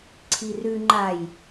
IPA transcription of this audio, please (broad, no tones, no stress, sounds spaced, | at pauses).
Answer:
ǀʰ i r ʉ ŋ͡ǃ a j